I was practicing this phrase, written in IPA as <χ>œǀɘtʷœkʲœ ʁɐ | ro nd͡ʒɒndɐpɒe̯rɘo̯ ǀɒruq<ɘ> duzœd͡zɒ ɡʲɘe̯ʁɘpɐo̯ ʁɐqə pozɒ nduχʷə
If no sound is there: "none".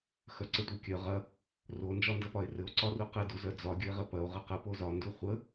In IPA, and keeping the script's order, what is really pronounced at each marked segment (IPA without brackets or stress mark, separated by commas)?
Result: x, ɘ